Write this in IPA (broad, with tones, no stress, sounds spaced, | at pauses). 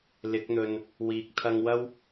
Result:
l ɪ˨˥ k̚ n̪ ɵ˨ n | w iː˨ k̚ t̪ʰ ɐ˧ ŋ w ɐ˥ w